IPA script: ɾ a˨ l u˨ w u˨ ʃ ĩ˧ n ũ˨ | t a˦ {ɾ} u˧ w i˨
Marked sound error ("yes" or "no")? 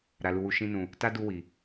yes